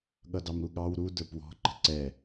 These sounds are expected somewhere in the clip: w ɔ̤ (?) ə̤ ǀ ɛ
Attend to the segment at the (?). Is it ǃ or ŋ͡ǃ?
ǃ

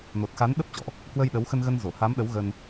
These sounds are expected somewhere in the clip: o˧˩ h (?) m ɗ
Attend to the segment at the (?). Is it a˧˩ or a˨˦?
a˨˦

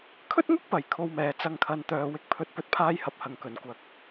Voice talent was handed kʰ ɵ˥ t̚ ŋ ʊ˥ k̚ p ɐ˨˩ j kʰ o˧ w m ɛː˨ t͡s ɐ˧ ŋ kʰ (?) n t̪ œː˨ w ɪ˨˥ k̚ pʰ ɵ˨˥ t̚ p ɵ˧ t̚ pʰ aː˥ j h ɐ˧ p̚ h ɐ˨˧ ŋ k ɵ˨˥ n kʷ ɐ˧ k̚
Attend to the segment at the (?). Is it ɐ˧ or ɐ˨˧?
ɐ˨˧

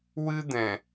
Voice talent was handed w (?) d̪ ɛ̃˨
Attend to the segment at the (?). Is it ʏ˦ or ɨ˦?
ɨ˦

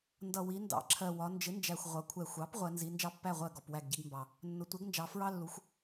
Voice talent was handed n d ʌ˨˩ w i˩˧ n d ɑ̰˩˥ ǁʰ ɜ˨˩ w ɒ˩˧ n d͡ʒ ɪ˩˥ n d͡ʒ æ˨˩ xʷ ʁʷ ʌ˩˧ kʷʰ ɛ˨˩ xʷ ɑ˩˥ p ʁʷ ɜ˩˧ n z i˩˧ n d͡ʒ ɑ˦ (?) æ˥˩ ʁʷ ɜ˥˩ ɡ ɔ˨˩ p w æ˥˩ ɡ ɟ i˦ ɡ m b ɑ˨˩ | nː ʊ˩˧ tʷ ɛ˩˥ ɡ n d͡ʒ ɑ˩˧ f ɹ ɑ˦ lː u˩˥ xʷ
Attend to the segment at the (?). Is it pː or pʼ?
pː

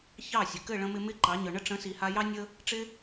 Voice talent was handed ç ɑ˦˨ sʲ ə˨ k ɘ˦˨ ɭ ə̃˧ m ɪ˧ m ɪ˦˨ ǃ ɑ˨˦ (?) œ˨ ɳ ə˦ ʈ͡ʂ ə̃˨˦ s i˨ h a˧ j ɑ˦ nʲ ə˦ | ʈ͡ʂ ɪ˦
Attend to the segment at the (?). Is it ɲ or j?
ɲ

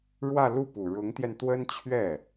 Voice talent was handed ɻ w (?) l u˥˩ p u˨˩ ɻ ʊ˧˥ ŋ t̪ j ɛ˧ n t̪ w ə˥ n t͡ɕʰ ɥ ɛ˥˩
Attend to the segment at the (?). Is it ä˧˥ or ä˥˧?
ä˥˧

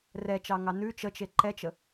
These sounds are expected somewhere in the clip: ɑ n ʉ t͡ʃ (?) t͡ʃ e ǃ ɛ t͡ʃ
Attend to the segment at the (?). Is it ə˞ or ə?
ə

